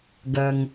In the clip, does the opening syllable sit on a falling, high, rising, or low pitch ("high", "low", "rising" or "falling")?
low